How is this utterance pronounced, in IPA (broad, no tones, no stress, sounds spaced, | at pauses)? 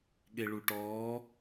ɠ e ɭ u ʈ ɔː